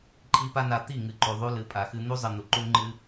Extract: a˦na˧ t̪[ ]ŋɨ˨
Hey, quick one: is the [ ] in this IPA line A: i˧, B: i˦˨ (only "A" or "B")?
B